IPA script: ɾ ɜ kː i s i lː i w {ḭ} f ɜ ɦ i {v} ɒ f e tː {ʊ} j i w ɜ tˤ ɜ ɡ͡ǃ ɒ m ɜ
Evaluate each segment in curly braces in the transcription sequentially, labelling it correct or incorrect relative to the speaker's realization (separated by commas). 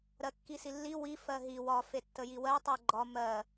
incorrect, incorrect, incorrect